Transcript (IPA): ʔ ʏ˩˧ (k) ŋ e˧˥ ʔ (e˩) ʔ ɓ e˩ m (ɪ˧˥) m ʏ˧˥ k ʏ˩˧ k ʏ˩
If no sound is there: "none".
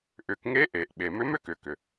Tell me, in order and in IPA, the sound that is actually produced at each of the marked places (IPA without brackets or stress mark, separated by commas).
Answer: k, e˩, ʏ˧˥